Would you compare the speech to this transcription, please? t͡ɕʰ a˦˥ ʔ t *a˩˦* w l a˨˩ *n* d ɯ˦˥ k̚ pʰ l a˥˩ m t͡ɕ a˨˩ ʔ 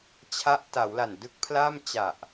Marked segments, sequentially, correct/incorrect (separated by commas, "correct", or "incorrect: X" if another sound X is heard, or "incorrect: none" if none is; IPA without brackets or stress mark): correct, correct